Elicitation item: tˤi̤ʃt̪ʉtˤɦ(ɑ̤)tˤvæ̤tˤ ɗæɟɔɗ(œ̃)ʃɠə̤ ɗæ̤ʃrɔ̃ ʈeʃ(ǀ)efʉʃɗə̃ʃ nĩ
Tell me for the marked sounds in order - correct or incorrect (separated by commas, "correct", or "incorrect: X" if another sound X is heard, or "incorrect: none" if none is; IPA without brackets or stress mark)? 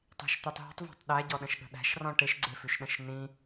incorrect: ə̤, incorrect: ə̃, incorrect: ɡ͡ǀ